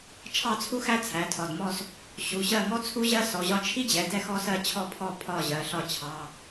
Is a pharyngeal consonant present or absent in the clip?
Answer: absent